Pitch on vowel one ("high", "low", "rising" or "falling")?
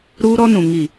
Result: high